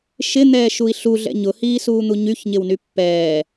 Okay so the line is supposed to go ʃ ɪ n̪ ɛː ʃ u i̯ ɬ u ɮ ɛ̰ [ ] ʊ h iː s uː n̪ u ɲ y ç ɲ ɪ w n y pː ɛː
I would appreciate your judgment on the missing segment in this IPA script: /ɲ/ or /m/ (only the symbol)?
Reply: ɲ